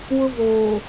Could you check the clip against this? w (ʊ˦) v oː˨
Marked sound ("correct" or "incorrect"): correct